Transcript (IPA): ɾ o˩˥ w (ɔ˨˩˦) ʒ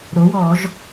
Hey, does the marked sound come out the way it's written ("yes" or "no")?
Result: yes